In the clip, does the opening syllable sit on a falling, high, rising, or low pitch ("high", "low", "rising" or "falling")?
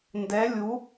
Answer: rising